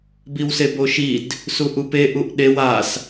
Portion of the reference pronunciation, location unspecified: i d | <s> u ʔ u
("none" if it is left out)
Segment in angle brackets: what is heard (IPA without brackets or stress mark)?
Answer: s